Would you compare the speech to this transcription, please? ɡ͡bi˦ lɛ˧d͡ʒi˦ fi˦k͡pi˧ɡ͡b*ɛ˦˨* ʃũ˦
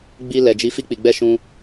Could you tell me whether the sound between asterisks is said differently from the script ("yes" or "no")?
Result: yes